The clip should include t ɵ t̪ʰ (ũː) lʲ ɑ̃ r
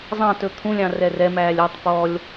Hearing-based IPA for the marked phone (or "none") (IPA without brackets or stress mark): ũ